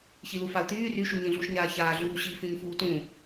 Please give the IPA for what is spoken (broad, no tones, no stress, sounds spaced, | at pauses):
ç i l u f a u̯ t̪ yː r y ʃ u ɲ ĩ ɮ u ʃ ɲ aː ç aː ɮ uː ɕ i f ĩ ɲ f uː t ũ